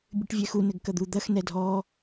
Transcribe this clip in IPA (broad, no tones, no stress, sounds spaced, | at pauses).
bʲ ɨ ʈ vʲ ɛ x u n ɘ ɡ k ɐ d̪ u d̪ ɐ x n ɛ dʱ ɔ